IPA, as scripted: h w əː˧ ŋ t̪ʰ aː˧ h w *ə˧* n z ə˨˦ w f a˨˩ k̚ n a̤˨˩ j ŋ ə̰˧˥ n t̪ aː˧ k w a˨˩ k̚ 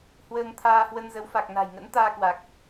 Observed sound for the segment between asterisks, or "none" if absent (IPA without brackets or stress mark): ə˧